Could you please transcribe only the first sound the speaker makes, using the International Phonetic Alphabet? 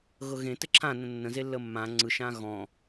ɣ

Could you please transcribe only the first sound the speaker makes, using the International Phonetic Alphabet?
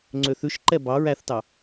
ŋ͡ǀ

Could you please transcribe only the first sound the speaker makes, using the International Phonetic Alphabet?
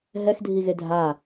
ɦ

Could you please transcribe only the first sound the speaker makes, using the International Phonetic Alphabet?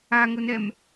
a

